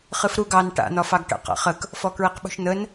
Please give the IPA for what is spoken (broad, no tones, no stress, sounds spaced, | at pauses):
χ ɨ f ɾ u ɡ ɑ n ʈ a̰ n̪ ɒ f ɑ ɡ ʈ ə̰ q a̰ χ ə k | f ɔ k ɹ i q ɓ ṳ ʃ n̪ ə n